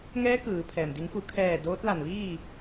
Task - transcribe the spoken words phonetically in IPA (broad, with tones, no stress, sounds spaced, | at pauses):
ŋ ɛː˧˥ k ɯː˩˧ pʰ ɛː˩ m d i˩˧ ŋ k u˩˧ kʰ ɛː˧˩ d oː˧˥ t̚ l a˧˩ n ʋ iː˥˨